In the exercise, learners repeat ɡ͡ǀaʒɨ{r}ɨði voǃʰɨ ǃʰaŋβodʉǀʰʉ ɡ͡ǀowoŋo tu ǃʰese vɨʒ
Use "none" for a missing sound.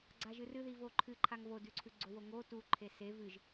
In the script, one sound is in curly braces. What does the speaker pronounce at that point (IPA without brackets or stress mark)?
r